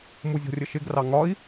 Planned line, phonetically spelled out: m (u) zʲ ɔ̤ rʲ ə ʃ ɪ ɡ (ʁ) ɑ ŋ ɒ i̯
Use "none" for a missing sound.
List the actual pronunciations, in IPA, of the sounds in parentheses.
u, r

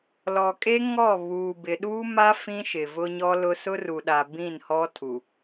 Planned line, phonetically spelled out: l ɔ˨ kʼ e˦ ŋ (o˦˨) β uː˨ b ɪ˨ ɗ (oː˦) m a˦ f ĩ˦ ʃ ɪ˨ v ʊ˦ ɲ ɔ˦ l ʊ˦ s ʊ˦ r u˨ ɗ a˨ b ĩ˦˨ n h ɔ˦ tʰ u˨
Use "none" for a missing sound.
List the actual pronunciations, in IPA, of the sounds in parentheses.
ɔ˦˨, uː˦

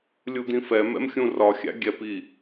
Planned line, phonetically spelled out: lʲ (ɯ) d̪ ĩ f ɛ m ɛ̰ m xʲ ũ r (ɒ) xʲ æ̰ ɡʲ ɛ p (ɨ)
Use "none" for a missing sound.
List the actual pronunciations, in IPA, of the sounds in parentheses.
u, ɒ, i

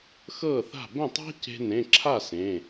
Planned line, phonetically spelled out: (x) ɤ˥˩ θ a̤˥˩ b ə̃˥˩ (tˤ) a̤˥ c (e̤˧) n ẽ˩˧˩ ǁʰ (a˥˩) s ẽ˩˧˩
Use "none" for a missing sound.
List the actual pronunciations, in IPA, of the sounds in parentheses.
x, tˤ, e̤˧, a˥˩

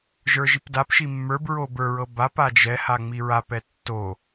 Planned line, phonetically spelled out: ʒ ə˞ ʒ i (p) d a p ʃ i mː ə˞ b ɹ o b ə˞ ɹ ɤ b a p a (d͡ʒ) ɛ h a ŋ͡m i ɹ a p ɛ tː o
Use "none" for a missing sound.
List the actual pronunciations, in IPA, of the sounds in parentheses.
p, d͡ʒ

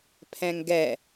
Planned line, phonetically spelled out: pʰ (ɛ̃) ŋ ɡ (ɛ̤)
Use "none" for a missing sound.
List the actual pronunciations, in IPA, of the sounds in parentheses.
ɛ̃, ɛ

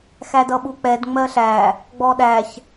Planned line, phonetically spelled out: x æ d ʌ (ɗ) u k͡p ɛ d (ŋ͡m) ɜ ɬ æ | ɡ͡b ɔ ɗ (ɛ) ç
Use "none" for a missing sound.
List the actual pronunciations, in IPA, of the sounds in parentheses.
ɓ, ŋ͡m, æ

